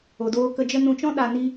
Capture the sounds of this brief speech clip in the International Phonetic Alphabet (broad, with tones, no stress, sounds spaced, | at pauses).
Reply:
o˨ d oː˧ k ə˧ d͡ʒ ə˦ n ũ˧ t͡ʃ ɔ̃˦ ɗ a˧ n i˦